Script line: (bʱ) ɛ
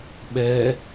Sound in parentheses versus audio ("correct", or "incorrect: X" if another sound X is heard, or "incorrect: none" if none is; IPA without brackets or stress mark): incorrect: ɓ